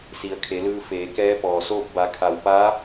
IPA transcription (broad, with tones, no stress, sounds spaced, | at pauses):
s i˩˧ ə̯ kʰ e˩˧ l ɯː˧ f eː˩˧ k ɛː˧˥ p ɔː˩ s oː˥˨ p̚ b a˩˧ kʰ a˩ w p aː˧˥